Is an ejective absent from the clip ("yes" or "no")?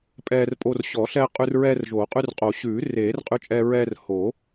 no